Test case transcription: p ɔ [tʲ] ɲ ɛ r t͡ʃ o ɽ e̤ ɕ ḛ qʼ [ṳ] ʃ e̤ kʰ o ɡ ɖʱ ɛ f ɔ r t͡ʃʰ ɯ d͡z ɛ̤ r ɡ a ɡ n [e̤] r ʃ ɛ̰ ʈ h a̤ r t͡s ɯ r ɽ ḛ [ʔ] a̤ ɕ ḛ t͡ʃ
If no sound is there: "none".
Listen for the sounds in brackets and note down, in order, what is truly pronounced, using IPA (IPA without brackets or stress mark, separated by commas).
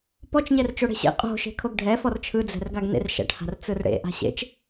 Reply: t͡ʃ, o̤, ḛ, ʔ